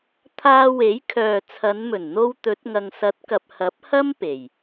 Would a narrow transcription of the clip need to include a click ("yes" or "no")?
no